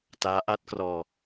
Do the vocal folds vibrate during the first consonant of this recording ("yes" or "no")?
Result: no